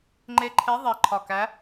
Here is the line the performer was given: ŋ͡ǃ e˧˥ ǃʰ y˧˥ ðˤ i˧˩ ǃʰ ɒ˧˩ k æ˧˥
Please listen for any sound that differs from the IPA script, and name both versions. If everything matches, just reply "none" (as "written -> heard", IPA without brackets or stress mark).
y˧˥ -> e˧˥